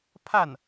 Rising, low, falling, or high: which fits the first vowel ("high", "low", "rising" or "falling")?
falling